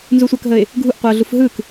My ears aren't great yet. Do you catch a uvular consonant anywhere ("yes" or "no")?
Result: yes